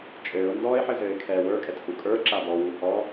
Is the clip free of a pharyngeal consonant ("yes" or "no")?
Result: no